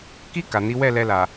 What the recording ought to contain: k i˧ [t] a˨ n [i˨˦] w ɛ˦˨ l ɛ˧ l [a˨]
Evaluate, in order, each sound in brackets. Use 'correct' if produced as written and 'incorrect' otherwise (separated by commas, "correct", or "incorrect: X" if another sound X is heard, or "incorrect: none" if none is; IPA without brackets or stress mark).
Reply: incorrect: k, correct, correct